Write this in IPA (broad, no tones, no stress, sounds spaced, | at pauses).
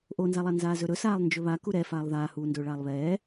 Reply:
ʔ o n z a lˠ a n z aː z ɵ ɾ ɵ s aː lˠ n d͡ʒ ɵ β a k u ɾ ɛ f aː lˠ ð aː h uː n d ɵː ɭ aː lˠ β ɛː